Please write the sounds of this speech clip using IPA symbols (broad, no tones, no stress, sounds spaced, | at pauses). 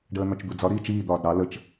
ɖ əː n̪ ɒ t͡ʃ d̪ u d͡z ɒ ɾ iː t͡ʃ iː d̪ ɒː d ɾ ɑ l ə t͡ʃ